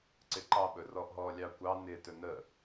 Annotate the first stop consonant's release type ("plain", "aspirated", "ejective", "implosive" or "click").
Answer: click